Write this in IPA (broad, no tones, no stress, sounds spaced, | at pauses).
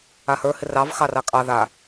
a h ə˞ h ɪ r ɑ v x ɑ r ɑ kʼ ɑ ð a